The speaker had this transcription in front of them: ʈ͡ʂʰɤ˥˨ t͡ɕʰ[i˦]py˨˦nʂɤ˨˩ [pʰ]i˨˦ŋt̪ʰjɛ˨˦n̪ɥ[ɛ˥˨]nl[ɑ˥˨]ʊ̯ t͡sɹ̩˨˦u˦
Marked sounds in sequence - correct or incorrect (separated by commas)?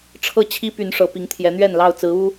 correct, incorrect, correct, correct